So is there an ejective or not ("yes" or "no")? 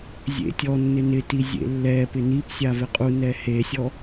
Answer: yes